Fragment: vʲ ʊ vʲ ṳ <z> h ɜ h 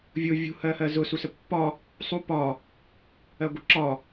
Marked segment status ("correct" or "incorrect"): incorrect